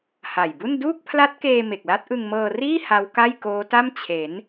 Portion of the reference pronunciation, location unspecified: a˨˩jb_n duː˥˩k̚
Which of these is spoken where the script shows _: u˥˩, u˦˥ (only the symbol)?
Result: u˥˩